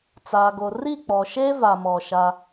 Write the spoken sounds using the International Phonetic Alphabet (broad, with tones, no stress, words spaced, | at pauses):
t͡saː˨ɡo˨ ri˦˨k͡pɔ˨ʃe˦va˨ mɔ˨ʃa˦